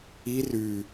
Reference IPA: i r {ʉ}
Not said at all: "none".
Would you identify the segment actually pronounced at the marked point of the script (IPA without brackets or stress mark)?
ʉ